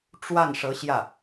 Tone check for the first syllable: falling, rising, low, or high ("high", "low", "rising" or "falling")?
falling